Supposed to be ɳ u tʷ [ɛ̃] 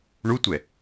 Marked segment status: incorrect: ɛ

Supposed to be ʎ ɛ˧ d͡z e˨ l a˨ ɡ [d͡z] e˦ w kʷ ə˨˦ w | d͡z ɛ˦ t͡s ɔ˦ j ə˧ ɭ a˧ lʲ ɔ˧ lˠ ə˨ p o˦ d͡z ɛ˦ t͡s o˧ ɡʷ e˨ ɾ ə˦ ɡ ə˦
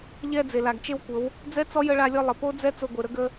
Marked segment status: incorrect: t͡ʃ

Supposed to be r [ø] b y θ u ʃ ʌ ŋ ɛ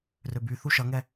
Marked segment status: correct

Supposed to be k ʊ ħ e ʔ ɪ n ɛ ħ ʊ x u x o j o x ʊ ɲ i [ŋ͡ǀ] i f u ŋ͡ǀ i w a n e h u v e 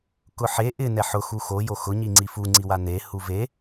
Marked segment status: correct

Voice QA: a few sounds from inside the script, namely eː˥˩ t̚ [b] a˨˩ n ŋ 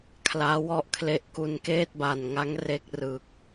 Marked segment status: correct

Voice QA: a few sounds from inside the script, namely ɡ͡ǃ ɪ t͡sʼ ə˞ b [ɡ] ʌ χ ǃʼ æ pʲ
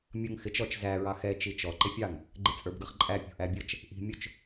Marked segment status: correct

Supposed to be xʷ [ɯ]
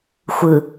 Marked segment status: correct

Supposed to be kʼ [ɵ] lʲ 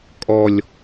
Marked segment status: incorrect: ɔ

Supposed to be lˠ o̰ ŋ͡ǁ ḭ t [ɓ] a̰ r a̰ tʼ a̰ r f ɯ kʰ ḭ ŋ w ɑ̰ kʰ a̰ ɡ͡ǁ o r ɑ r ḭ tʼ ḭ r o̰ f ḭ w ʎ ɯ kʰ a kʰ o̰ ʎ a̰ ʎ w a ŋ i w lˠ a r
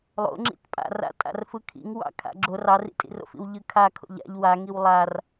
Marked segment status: incorrect: pʼ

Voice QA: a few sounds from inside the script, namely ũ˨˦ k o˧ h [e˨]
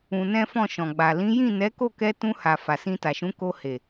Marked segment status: correct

